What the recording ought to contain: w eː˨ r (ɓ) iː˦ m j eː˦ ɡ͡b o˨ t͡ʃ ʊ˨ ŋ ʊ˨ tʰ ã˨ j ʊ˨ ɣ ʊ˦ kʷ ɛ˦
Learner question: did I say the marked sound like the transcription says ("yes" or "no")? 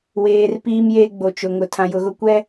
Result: no